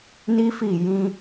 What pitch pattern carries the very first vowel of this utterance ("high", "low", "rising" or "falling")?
high